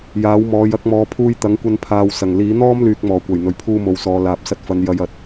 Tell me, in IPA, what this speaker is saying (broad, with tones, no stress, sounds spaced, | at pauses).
j aː˨˥ w m ɔː˨˧ j ɐ˨˥ k̚ m ɔː˨ pʰ uː˧ j t̪ ɐ˨˥ ŋ kʷ ɐ˧ n pʰ aː˨ w s ɐ˨˩ ŋ l iː˨˥ n̪ ɔː˥ m l yː˨ k̚ m ɔː˨˩ kʷ ɐ˨˩ j n̪ ɵ˨˩ ɥ pʰ uː˧ m o˨ w s ɔː˨ l aː˨ p̚ s ɐ˧ t̚ f ɐ˨˧ n j ɐ˨ j ɐ˨ t̚